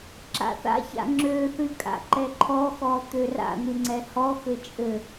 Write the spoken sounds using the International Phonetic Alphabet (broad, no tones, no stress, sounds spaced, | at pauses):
ǁ a̰ θ a̰ ç a̰ ŋ͡ǁ ø θ ɨ kʼ a̰ ǃ ɛ ǃʰ ɔ x ɔ t̪ ø r a̰ n̪ ɨ ŋ͡ǀ ɛ h ɔ x ɘ t͡ʃʼ ɘ